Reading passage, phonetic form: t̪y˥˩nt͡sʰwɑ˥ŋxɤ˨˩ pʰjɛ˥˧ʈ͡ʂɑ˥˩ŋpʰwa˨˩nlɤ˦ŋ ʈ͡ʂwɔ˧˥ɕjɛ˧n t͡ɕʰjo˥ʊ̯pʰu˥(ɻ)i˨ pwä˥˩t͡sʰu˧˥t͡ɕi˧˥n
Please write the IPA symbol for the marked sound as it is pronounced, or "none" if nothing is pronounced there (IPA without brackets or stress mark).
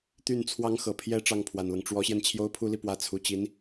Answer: l